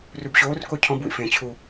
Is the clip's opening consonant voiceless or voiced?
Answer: voiced